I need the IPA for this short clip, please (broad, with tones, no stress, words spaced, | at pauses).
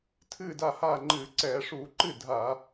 tʰɨː˥˩da˥˩haː˥˩ŋ͡ǃɨː˧˩˧ ǀɛː˧˩˧ʂuː˧˩˧ ǃɨ˥˩ dʱa˧˩˧